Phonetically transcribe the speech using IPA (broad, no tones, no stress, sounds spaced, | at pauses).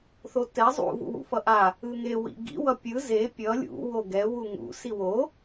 θ o t ɛ zˤ ṵ v ṵ w ṵ f ʌ ʔ a | ɯ ŋ e w ḭ ɡ ḭ w ʌ pʲ ɯ z e pʲ ʌ lʲ ṵ w o ɡ ɛ w u ŋ ṵ s i w o